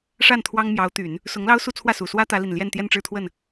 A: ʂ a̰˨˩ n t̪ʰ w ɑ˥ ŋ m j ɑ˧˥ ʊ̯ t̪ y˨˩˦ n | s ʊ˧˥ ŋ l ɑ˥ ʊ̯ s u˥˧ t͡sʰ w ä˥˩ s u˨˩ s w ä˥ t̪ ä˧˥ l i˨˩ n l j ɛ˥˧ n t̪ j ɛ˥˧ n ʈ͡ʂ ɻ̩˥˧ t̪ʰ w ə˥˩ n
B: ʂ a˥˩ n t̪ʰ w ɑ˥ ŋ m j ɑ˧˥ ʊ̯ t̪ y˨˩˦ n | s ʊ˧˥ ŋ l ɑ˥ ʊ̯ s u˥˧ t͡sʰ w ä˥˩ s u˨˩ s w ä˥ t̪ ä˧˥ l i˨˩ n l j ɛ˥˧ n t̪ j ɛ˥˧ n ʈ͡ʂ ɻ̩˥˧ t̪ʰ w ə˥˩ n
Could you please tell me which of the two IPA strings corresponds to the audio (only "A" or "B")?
B